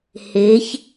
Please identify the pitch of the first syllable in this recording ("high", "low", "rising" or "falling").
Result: rising